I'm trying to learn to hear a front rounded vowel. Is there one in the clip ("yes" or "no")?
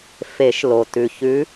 no